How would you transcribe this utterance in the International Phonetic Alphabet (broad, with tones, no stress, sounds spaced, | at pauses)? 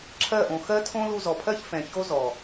ǁʰ ɜ˦˨ ʔ õ˨ x ɜ˦ tʰ õ˦ l u˧ z ɔ˨ pʰ ɜ˦ ç f ɛ̃˨ ç o˦ z ɔ˨